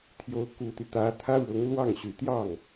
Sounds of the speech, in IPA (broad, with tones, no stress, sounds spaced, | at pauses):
t̪ʰ j o˧˥ ʊ̯ k u˨˩ t̪ y˦ t̪ ä˧˥ t̪ʰ ä˥ ɻ ʊ˧˥ ŋ l w ɑ˥˩ ŋ ɕ y˨˩ t̪ j ɑ˥˩ ŋ